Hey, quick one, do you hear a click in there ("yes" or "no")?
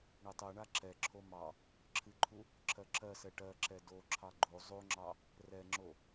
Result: yes